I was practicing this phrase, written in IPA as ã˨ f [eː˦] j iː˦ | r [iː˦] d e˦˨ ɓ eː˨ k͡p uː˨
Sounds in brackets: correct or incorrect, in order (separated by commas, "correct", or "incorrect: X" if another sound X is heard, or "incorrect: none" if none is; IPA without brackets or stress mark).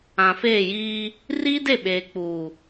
incorrect: eː˦˨, correct